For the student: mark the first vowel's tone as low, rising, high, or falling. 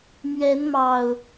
rising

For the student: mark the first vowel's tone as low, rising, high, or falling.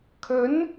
rising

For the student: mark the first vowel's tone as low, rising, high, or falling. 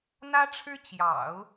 high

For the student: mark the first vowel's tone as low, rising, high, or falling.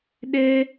high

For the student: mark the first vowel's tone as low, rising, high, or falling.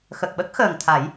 low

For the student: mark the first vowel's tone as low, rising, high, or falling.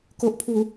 low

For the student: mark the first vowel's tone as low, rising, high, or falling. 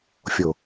low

